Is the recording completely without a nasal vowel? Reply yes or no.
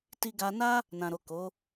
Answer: no